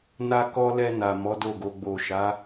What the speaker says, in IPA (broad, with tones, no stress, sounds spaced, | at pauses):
n a˧ k ɔ˧ l ɛ˧ n a˨ m ɔ˨˦ d o˦˨ ɡ o˧ ɡ͡b o˨ ʃ a˨˦